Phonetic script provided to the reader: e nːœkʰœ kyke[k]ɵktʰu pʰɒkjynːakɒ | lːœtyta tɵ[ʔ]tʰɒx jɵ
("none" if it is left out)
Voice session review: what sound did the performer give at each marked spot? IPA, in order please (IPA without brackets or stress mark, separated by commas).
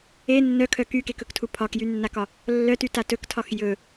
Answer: k, k